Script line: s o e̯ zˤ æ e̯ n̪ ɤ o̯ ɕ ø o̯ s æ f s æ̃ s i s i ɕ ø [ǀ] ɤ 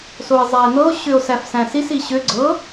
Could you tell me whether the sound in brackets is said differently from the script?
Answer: yes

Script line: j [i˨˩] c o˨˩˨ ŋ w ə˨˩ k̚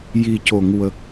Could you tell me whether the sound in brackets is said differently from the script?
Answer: no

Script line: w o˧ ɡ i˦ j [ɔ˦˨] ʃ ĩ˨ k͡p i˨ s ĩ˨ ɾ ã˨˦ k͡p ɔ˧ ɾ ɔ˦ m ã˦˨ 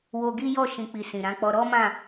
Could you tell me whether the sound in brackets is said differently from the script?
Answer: no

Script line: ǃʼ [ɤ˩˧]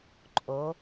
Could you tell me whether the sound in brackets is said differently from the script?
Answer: yes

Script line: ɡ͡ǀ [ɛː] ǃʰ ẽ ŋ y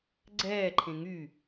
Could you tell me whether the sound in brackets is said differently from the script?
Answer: no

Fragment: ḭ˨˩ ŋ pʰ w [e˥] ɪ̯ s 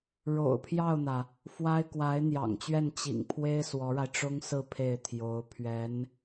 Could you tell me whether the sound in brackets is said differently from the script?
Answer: no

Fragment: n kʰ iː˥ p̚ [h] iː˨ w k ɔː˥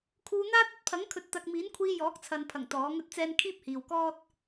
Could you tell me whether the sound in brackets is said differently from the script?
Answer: no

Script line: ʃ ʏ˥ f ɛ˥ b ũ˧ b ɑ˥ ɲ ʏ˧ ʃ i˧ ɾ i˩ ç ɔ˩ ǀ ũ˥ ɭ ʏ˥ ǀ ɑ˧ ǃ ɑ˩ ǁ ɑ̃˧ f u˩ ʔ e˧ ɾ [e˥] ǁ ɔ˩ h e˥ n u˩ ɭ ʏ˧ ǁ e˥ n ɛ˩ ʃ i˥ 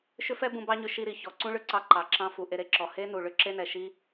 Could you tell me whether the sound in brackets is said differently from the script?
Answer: yes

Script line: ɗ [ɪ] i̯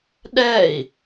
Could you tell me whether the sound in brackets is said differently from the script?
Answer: yes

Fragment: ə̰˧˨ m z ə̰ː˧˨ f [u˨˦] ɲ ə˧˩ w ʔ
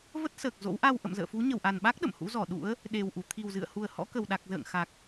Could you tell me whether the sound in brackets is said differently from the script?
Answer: no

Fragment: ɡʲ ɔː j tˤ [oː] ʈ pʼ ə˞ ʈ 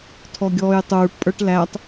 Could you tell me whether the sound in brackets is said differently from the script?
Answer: yes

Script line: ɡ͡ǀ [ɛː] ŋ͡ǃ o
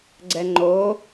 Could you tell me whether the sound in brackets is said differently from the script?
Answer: yes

